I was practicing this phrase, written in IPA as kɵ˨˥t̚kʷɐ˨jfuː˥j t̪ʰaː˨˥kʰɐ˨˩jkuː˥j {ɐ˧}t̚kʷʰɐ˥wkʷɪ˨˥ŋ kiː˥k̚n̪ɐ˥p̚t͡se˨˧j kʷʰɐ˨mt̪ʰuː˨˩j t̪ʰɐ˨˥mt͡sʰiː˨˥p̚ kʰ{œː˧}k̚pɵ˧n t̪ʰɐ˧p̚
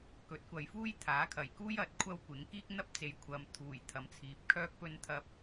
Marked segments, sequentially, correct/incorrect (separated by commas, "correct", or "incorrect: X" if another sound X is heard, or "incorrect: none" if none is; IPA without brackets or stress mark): incorrect: ɐ˨˥, correct